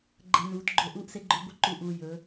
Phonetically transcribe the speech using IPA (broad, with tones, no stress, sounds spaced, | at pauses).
ɡ͡ǃ ə˨ n uː˨˦ t ɡ͡ǃ ɵ˦ ʔ uː˦ ʔ s e˦ ɡ͡ǃ ɵ˦ ɡʷ ə˦ ǃ u˨ ʔ uː˨ j ɵ˨˦